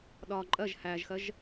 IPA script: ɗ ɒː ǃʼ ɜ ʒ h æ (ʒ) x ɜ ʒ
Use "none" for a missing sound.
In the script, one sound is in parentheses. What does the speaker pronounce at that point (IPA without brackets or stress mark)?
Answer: ʒ